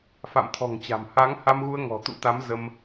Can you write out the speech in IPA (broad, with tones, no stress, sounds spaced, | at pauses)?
f a̰˧˨ m t̪ʰ ɔ̤˨˩ ŋ t͡ɕ a̤˨˩ m h a˨˦ ŋ h a˧ m ɣ u˧ ə̯ ŋ ɔ̤˨˩ t̪ ṵ˧˥ t̪ a˨˦ m z ə˧ m